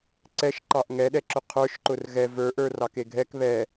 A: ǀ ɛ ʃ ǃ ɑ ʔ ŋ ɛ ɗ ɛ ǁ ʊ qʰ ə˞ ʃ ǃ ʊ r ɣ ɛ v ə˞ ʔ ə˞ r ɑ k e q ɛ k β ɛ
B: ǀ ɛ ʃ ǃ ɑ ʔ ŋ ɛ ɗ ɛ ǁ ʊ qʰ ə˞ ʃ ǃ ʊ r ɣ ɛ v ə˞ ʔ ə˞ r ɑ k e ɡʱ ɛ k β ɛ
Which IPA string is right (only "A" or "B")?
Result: B